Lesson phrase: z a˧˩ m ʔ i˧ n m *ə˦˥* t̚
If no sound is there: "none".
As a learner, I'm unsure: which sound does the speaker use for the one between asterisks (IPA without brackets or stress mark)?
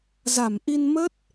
ə˦˥